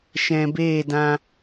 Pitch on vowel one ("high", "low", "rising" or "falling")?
low